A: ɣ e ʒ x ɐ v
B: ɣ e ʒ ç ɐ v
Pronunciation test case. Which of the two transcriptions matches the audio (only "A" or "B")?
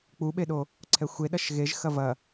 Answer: A